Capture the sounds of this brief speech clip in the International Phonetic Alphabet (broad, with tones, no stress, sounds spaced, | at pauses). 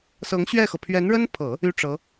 s ɤ˧˥ ŋ ɕ ɥ ɛ˥˩ x ɤ˩ pʰ ɥ ɛ˧˥ n ɻ ə˥ n pʰ ɤ˨˩˦ | y˥ ʈ͡ʂ ɤ˧˥